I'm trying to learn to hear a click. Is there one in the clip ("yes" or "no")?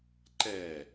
yes